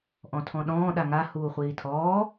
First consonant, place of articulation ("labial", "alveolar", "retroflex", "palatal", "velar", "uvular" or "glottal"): glottal